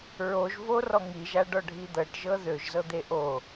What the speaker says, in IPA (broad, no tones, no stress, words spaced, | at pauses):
ɹoʒvorɔ ŋiʒaɖɔɖʱi d̪ɤʈʒɤ ðøʒzɤd̪e ʔo